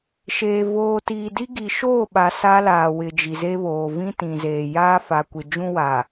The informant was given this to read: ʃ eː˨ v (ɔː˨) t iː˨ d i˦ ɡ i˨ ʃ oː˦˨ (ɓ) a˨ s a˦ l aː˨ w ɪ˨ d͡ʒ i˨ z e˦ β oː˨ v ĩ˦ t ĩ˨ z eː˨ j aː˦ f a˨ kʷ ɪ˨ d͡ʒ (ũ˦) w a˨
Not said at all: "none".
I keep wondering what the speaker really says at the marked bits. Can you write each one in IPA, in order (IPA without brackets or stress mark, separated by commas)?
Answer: oː˨, ɓ, ũ˦